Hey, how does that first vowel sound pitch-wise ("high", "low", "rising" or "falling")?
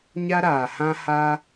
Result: high